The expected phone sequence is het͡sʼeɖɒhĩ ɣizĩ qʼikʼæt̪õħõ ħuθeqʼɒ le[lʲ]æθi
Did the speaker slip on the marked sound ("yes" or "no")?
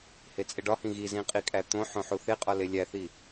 no